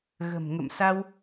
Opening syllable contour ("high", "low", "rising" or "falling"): low